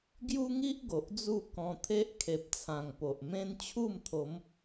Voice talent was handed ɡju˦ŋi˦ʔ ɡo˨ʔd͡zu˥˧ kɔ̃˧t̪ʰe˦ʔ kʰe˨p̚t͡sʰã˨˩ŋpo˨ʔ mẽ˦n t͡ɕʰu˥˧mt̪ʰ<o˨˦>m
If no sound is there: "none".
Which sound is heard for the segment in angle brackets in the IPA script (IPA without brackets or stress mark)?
o˨˦